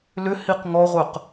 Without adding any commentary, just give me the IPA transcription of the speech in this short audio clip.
l ʏ h i q ŋ ɔ ʁʷ œ q

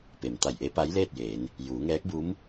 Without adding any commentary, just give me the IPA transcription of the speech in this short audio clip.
p e˩ m t̪ a˧˩ j ʔ e˧˥ p a˧˥ j l eː˥˨ t̚ j eː˩˧ n | j uː˩˧ ŋ ɛː˧˥ k̚ b u˧˥ m

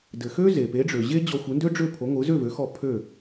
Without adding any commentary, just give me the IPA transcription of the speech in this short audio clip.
d ɘ˩ x ø˥ z e˩ p e˩˥ ɖ͡ʐ ø˩ ʑ e˥ d͡ʑ ɔ˧ xʷ ɯ˩˥ n d ø˥ ɖ͡ʐ ø˥˩ pʰ o˩˥ ŋʷ ɯ˩˥ z ø˥˩ v ø˩˥ x ɔ˧ pʰ ø˥˩

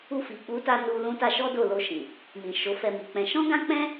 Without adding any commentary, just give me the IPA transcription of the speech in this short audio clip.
u˧ f i˨ k͡p u˨˦ t a˧ n u˧ l ũ˧ t a˧ ʃ ɔ˦ d o˦˨ l o˧ ʃ ĩ˨ | m ĩ˨ ʃ o˨˦ f ɛ˧ m i˨ k͡p ɛ̃˧ ʃ ɔ̃˦ ɡ ã˦ k͡p ɛ̃˦

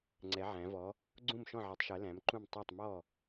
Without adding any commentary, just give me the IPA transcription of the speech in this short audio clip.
ŋ͡ǀ ɛ˩˧ ʕ æ̃˩˧ v ɔ˩˧ | ɡ͡ǀ ũ˧˩ m ʃ ɔ̃˧˩ ʕ ɛ˩˧ tˤ ʃ ɜ˩˧ l æ̃˩˧ m ǃ ũ˧˩ m tˤ ɑ˧˩ tˤ m ɔ˧˩

